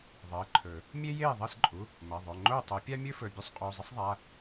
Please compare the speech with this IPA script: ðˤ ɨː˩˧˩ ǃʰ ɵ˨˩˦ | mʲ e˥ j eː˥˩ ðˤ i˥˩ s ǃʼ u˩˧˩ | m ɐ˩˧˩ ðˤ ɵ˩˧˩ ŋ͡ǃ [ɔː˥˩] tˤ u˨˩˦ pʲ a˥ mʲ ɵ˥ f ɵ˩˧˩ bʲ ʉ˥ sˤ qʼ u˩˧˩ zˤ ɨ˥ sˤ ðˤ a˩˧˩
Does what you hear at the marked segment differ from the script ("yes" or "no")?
yes